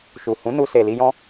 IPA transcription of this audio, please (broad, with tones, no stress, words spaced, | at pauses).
ʃu˨hũ˨˦nu˧ se˨li˧jɔ̃˦